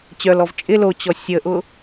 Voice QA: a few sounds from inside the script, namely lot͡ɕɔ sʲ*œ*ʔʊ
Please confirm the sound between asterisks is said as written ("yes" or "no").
no